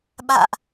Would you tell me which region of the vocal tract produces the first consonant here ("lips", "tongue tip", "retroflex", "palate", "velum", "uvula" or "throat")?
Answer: lips